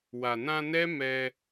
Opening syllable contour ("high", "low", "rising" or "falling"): low